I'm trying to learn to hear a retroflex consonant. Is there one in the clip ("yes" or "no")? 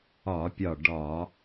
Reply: yes